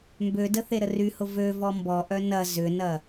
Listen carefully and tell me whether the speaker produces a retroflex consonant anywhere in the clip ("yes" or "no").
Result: no